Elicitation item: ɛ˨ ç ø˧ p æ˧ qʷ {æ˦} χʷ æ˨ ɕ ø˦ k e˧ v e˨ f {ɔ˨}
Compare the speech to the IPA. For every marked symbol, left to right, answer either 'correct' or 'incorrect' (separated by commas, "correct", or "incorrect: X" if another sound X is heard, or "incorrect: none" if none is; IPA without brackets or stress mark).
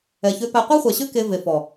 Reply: correct, correct